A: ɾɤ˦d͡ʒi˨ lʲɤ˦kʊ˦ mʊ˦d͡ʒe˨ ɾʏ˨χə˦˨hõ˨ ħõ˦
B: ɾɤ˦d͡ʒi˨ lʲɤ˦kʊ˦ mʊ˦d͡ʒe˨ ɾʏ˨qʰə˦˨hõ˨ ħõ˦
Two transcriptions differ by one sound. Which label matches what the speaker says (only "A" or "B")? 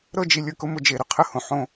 B